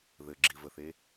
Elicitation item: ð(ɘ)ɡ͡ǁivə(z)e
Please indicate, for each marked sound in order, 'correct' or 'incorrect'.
correct, incorrect: θ

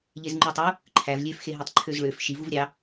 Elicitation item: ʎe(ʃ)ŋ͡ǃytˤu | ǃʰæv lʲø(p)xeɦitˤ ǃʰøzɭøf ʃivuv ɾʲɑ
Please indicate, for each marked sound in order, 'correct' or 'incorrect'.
incorrect: z, incorrect: f

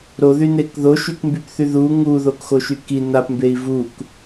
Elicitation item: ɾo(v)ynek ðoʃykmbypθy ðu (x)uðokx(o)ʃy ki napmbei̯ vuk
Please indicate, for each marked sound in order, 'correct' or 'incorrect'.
incorrect: ð, incorrect: ŋ, correct

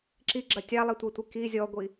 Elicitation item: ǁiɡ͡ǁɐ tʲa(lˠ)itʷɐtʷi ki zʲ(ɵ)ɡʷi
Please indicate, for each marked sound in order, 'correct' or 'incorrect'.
correct, incorrect: ɔ

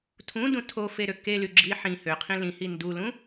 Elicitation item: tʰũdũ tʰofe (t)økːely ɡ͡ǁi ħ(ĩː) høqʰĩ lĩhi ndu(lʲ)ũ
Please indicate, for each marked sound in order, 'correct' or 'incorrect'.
incorrect: ɾ, incorrect: ĩ, incorrect: l

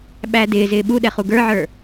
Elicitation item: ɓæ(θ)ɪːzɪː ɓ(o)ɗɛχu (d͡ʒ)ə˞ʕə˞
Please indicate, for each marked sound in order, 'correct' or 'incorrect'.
incorrect: d, incorrect: u, incorrect: ɡ

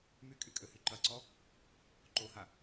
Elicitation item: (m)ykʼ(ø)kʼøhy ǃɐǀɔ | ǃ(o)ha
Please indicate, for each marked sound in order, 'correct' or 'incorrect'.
correct, incorrect: y, correct

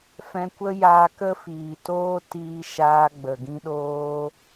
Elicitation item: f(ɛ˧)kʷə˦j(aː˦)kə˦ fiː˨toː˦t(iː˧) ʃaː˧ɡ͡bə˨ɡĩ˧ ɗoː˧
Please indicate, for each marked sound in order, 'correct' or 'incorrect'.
incorrect: ɛ̃˧, incorrect: aː˧, correct

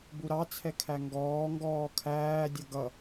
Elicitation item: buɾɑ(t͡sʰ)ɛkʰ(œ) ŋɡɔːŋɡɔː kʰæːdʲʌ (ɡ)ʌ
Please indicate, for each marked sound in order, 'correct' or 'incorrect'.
correct, incorrect: æ, correct

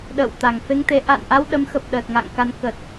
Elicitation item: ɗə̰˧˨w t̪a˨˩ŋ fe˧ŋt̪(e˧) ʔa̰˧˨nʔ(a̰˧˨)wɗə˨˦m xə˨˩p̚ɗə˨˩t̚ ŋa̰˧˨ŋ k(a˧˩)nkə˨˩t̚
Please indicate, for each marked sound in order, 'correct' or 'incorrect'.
incorrect: e˨˦, incorrect: a˧, incorrect: a˨˦

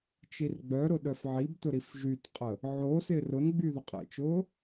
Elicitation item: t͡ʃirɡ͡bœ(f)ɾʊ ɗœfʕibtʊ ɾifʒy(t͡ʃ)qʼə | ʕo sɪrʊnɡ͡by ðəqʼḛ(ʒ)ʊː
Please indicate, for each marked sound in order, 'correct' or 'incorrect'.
incorrect: none, incorrect: t, incorrect: t͡ʃ

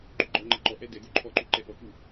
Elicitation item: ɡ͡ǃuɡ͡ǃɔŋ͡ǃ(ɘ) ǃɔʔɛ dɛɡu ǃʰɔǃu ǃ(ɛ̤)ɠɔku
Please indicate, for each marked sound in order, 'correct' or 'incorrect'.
correct, incorrect: ɛ

